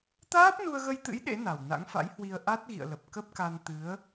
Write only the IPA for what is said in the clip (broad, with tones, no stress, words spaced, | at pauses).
t̪aː˦˥p̚nu˧ə̯ɣə˧jt̪ɨ̰˧˥j ɗḛ˧˥ na˨˩wna̰˧˥ŋ fa̰˧˥jhwi˧ə̯ ʔa˦˥t̚ ɣḭ˧˨ə̯lə˨˩p̚ kə˦˥p̚ka˧n t̪ɨ˨˦ə̯